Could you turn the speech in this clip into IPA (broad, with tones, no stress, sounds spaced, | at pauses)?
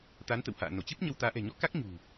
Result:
t̪ a˨˦ n t̪ ə̰˧˨ w h a̰ː˧˨ n o˧˩ t͡ɕ ɨ˦˥ p̚ ɲ ə˧ w t̪ aː˨˦ ʔ ɛ̤˨˩ ɲ ɔ˨˦ k a˦˥ k̚ ɲ ṳ˨˩